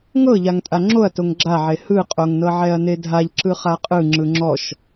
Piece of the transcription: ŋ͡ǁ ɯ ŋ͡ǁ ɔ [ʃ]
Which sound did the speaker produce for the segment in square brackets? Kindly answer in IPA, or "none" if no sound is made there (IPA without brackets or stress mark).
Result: ʃ